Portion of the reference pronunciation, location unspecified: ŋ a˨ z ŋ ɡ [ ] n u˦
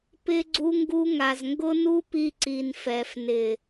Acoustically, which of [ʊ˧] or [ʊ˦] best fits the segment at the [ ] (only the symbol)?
ʊ˦